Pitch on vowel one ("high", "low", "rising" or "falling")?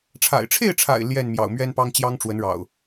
low